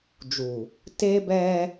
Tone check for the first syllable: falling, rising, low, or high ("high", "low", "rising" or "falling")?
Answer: low